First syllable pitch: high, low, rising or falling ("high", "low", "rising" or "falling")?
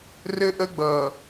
high